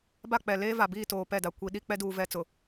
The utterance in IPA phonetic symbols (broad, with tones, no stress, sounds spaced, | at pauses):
b a˦˨ k͡p ɛ˨ l eː˦ v a˨ b iː˦˨ t oː˨ p ɛ˦˨ d a˨ kʷ i˨ ɗ i˦ k͡p ɛ˦ d uː˨ v ɛ˨ t͡s ʊ˨